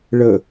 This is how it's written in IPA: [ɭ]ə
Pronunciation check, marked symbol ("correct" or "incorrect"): correct